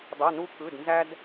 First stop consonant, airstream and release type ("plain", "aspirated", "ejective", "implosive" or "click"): plain